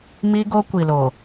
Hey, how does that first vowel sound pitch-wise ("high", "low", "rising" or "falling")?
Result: high